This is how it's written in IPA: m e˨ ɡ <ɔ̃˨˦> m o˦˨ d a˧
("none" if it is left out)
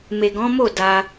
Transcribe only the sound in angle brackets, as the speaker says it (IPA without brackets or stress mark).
ɔ̃˨˦